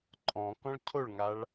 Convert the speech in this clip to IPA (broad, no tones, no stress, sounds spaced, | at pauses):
ǃʼ ɔ̃ k ɔ̃ ɭ cʰ o ɭ ŋ a ɭ